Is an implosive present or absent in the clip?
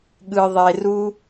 present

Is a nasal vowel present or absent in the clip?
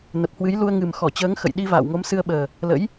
absent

